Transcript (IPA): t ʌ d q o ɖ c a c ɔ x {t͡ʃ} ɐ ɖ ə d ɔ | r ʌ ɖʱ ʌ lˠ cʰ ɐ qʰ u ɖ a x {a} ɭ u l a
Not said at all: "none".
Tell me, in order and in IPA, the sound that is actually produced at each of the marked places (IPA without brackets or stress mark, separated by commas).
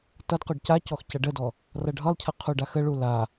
c, ə